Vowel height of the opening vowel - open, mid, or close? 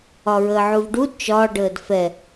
open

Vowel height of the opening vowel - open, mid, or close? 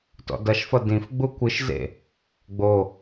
mid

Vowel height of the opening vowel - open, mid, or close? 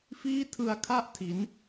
close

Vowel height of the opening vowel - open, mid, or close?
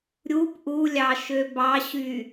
close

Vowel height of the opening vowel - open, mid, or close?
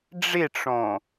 close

